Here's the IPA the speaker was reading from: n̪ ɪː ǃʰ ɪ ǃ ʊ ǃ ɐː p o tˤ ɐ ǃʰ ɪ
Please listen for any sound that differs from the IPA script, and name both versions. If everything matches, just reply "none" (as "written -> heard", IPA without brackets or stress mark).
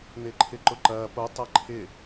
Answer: none